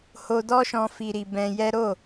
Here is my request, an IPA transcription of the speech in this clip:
ho˧dɔ˦ʃɔ̃˧ fi˧ɾi˧bɛ̃˧jɛ˦ ɾo˦˨

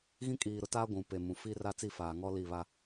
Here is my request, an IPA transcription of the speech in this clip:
ɣĩ˦kʼiː˨ɾʊ˨taː˦ ɡʷũ˨pe˨ mũ˨ fiː˦ra˦t͡si˦˨faː˨ ŋɔ˦li˦˨βa˦

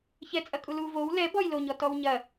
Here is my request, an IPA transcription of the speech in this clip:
çɛt͡sʼɐ kʼulu vow lɛ bɔjloɲɔ tɔwɲɐ

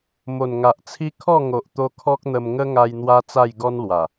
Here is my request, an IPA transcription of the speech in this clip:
mo˨˩nŋa˨ʔt͡sʰi˦ kʰɔ˥˧ŋo˨ʔt̪o˧ kʰɔ˦k̚n̪ə˧m ŋə˦ŋa˧j n̪wa˦t͡sa˥˧j ɡɔ˦nlwa˨˩

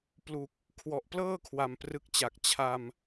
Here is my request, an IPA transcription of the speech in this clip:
plu˨˩k̚ | kʰwɔ˨˩ʔplɤː˥˩ kʰwa˨˩mprɯ˦˥k̚t͡ɕa˨˩k̚ t͡ɕʰa˧m

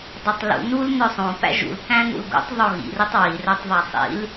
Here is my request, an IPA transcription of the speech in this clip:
dˤetˤlṵ nul nœsˤõ pæ̰ʒṵlkæ̃nṵl ɡṵtˤðˤo ɣḭritˤ wirœtˤ ðˤæsˤḭl

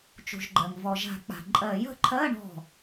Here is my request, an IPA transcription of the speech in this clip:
t͡ʃṳ˩ʒɡ͡ǃɜ˩ŋ vɔ˩ʒa̤˨˩˦k͡pa̤˩ ǃʼɜ˨˩˦jə̤˨˦ǃʰɜ˧˥˧ɳɔ̤˧˩

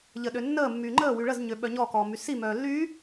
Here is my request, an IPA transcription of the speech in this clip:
ʎəɗønːəːmːyː ŋ͡ǃəː wyɭəzɲø ɓœɲɔkɔː mysimœː lːy

